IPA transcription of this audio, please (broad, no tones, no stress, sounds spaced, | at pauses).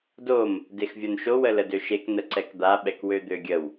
d o m | d e x vʲ o n ʃ o w ə l ə d ø ʃ e k n ə ǀ ɛ k d̪ a ɓ ɛ k w ø d̪ ø ɡʲ ə w